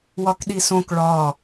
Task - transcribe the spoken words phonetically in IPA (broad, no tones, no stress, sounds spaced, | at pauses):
w ɒ k ɗ i s õ k ɭ ɒ